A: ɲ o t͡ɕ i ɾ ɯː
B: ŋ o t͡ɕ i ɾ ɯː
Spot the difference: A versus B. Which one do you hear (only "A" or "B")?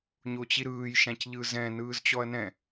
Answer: A